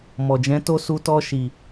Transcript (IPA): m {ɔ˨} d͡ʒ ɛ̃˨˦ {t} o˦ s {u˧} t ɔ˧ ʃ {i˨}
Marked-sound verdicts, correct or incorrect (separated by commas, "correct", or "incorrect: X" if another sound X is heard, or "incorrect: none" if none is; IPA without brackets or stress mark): correct, correct, correct, correct